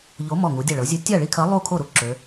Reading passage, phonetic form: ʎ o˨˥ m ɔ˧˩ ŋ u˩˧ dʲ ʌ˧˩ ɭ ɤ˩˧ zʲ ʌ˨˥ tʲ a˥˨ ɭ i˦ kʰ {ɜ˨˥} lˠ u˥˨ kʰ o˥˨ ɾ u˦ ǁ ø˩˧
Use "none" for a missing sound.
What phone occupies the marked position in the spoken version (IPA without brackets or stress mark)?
ɜ˨˥